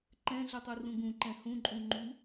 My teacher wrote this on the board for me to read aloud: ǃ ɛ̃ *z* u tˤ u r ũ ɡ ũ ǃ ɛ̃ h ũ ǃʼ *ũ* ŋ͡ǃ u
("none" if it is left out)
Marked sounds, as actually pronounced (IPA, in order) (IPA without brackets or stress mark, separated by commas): ɮ, ũ